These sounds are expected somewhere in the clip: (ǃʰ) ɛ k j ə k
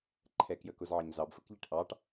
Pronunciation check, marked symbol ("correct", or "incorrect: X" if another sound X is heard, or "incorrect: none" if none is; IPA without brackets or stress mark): correct